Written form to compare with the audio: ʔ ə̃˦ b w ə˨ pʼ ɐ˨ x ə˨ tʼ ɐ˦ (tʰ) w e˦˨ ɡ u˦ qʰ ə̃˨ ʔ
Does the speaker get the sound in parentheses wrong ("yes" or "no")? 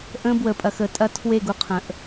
no